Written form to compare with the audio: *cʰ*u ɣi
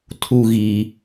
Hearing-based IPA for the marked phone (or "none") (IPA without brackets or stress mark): tʰ